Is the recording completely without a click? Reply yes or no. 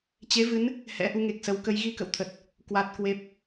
yes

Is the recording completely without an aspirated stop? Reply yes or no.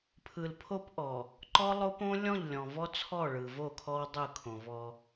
no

